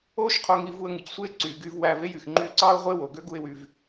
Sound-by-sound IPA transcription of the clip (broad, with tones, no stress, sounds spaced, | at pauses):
oː˥ ʃ qʰ o˧ ŋ i˧ v u˧ ə̯ ŋ ɯ˩ c sʷ eː˥ ǀ yː˩ ɡ yː˧ v w æː˧ v e˥ j y˩ x ŋ͡ǃ yː˧ ǀ ɑː˥ ʊ̯ ʁʷ e˥ w o˩ ɡ ø˥ ɡ u˧ ɪ̯ w y˩ v